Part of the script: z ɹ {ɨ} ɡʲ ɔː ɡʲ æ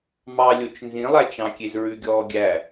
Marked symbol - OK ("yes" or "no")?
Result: no